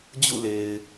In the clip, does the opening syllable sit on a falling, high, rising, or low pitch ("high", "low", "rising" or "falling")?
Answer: falling